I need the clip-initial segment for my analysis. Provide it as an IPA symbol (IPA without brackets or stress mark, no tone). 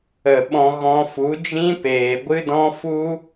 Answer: ə